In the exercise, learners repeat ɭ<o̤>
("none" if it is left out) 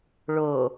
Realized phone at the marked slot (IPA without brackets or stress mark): o